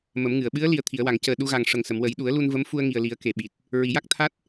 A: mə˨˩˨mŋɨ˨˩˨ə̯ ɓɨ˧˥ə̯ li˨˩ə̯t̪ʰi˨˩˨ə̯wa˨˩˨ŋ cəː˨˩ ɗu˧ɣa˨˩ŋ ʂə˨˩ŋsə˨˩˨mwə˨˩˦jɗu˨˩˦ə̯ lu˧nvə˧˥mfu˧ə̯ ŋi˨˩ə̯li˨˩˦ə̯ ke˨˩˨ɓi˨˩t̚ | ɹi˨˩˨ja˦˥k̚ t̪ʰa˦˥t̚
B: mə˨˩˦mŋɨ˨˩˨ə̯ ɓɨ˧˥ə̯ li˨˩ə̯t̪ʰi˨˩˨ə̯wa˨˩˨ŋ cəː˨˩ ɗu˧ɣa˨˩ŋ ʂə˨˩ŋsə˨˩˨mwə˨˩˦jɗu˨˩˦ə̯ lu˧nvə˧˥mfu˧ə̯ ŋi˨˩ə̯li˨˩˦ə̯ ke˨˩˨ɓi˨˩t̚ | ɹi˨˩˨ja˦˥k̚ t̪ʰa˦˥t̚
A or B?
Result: B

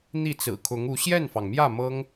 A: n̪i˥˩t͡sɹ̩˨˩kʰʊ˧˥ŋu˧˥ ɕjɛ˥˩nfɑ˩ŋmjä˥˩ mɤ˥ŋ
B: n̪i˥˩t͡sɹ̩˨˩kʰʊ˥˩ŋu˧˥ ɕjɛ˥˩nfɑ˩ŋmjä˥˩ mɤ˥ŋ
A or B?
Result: A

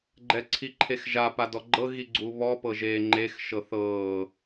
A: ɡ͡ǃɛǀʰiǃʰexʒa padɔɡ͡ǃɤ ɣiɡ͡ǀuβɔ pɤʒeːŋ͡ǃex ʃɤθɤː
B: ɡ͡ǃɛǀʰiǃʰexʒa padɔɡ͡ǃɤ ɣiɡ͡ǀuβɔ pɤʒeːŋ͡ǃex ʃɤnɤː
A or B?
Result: A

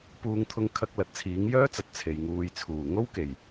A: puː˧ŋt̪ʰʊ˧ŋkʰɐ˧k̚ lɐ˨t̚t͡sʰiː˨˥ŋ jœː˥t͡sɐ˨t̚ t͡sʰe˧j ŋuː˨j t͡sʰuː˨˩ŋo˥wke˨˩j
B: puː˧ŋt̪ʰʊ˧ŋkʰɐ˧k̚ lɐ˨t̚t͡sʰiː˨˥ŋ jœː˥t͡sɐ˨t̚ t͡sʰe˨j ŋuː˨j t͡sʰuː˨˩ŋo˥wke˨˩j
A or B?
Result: B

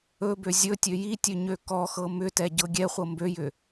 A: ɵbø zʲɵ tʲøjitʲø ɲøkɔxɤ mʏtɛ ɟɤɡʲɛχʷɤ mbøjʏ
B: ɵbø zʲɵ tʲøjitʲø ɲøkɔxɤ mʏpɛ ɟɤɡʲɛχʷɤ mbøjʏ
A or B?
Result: A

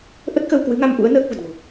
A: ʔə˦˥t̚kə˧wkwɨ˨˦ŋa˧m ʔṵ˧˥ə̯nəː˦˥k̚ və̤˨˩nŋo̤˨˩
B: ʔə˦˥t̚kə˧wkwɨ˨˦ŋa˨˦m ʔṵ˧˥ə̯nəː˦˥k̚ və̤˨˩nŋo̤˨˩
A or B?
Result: A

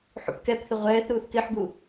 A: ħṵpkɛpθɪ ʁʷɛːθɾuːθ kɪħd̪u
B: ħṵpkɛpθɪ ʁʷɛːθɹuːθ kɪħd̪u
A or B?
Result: A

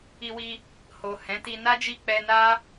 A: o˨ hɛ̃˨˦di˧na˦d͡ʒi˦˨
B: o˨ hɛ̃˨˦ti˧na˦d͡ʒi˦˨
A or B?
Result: B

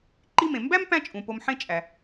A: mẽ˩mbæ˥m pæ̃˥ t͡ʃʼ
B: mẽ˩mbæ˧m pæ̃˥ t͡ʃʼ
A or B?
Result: A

